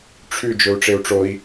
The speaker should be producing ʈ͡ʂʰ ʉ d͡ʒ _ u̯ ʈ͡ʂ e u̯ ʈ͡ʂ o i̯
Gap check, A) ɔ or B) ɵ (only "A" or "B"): B